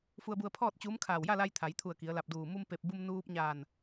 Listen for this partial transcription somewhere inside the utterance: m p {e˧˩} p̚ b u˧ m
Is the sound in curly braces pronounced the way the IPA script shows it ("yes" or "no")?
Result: yes